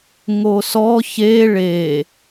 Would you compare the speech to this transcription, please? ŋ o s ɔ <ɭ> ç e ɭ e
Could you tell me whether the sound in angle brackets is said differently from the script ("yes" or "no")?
yes